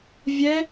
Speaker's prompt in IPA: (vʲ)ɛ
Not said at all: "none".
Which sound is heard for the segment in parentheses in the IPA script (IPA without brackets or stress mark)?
vʲ